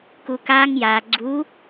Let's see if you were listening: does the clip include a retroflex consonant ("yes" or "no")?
no